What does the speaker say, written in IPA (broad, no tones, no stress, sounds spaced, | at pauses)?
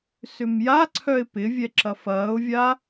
s ʏ m j a ǀʰ œ ɪ̯ p ɪ vʲ ɛ ǁ ɐ f ɐː ʊ̯ vʲ a